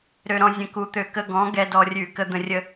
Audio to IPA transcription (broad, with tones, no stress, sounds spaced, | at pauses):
ɾ ø˧ ɾ ɔ̃˧ zʲ ə̃˨˥ k u˨˥ t̪ ø˧˩˧ k ə˧ ɡ ɔ̃˨˥ ɡ ɛ˧ d ɔ˧ rʲ ʉ˧˩˧ k ə˧ d̪ ə̃˧ rʲ ə˧